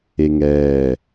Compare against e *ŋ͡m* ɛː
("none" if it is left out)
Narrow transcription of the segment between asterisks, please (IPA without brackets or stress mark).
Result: ŋ